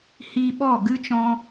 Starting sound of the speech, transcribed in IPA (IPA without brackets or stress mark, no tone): h